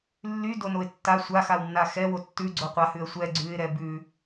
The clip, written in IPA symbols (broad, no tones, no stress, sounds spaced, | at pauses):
lː y d o n o ɪ̯ tː a sʷ a x a w nː a x ɛ w o tː ʉ ɡ͡ǀ o qʷ a h ʉ ə̯ sʷ ɛ ɡ͡ǀ ʉ ɪ̯ ɾ ɛ b ʉ